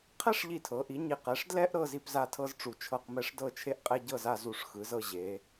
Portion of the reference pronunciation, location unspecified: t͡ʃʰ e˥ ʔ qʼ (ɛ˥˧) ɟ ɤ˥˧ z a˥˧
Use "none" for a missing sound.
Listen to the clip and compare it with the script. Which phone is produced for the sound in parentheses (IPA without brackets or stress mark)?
ɛ˥